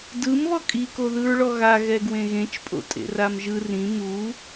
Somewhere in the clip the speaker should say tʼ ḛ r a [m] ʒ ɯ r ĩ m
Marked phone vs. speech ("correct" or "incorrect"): correct